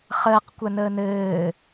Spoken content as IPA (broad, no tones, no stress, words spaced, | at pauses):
χəːqkʷanəː nɘː